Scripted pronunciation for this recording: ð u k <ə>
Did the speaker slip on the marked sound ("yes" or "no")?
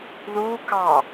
yes